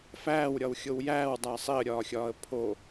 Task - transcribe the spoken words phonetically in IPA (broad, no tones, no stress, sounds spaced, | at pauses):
f æː w ɾʲ ɒ w xʲ o w j æː w dˤ æ sˤ i ə̯ ɾʲ ɒː xʲ ɒː ə̯ pʰ o